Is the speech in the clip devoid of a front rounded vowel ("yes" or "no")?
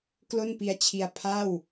yes